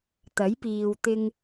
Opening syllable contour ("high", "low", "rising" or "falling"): rising